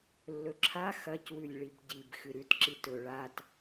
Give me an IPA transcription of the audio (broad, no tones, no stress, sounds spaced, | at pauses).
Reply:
lː ɵ ǁʰ a x ɐ c w ʉ lʲ ɭ i b ɟ i b x ɨ ɾ ʉ t ǁ i t ɵ ɭ a t